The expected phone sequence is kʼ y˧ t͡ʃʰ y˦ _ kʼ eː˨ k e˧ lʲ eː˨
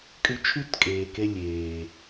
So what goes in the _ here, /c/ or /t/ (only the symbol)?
t